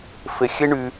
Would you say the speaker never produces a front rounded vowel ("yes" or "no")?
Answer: no